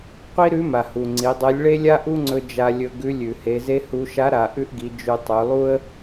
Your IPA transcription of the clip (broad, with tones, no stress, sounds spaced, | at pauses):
qʷ i˥ ɾ ʉ˧˥ m a˩ h u˩ ŋ͡ǀ i˩˧ dˤ e˧˥ lʲ ɭ e˥ lʲ a˥ ʔ u˥ ŋ͡ǀ ɵ˧ d͡ʒ a˧ lʲ ɵ˧ ɡ ʉ˧˥ lʲ ʉ˩ h e˩˧ z e˥ h u˧˥ ʃ a˧˥ ɾ a˩˧ ʔ ʉ˥ ʔ ɡ i˩˧ d͡ʒ ʉ˧ tˤ ʉ˩˧ lˠ u˥ ə̯